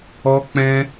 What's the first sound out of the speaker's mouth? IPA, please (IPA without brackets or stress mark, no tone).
ɔ